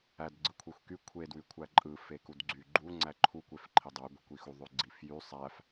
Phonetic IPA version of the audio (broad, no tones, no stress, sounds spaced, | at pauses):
æ d ɡ͡ǀ ɯ kʷʰ e xʷ k y kʷʰ e d w y kʷʰ æ ǃʼ ɯ f e k u d ɡ͡ǀ y ɡ͡ǃ u ŋ͡ǀ æ ǃʰ u kʷ e f ǃʰ i dˤ o ɡʷ i kʷ i x u ðˤ ø ɡ͡ǀ i f j y sˤ æ f